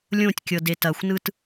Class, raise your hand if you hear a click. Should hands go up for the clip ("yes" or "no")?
no